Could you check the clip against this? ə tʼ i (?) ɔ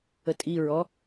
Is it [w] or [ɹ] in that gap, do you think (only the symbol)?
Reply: ɹ